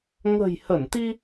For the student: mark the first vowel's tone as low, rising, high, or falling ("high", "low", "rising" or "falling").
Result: low